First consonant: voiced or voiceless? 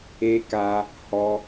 voiceless